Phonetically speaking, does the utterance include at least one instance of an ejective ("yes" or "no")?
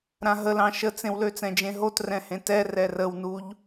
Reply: no